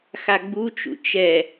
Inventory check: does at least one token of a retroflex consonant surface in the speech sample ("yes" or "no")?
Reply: no